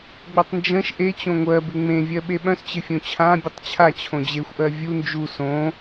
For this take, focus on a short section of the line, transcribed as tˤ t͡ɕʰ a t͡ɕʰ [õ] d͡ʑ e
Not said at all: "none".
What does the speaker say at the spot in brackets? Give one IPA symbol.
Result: õ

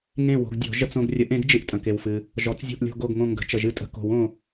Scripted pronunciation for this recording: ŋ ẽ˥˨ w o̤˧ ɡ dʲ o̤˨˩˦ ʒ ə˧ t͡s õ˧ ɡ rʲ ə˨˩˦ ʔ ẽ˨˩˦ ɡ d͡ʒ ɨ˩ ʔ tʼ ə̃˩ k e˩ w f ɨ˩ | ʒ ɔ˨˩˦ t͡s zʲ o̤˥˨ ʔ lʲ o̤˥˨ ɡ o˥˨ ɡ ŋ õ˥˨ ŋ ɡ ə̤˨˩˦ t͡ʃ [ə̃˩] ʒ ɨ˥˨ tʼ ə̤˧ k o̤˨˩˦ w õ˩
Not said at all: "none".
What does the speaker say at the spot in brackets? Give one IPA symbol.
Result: ə˩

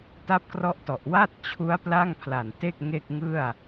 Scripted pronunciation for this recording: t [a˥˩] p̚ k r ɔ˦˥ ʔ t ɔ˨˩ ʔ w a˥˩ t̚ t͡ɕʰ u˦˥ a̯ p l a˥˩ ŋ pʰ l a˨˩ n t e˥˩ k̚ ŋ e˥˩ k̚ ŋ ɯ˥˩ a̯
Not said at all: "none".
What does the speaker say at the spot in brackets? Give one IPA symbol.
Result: a˦˥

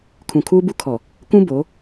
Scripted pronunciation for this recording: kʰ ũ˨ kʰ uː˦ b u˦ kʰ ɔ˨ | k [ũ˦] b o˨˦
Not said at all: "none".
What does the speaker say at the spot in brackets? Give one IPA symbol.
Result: ũ˦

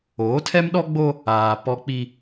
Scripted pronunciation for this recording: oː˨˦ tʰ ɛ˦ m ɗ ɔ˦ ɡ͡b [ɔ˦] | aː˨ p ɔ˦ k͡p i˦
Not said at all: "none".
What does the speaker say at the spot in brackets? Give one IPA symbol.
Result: o˦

